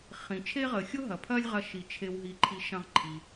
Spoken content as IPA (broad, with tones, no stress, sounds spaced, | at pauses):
χ ĩ˩ t͡ʃʰ e˦ ʁ əː˩ xʲ ʊ˥ ɦ ɐ˩ pʰ ɐː˦ lʲ ʁ ɐ˨ ʃ i˩ t͡ʃʰ e˩ w ɦ i˩ ǃʰ i˩ ʃ ɐ̃˨ ʁ ǃʰ i˩